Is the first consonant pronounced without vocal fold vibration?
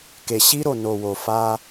yes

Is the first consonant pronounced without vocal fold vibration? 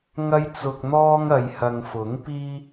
no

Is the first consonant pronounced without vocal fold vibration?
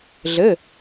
no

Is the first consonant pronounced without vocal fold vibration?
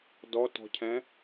no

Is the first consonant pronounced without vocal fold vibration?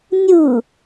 no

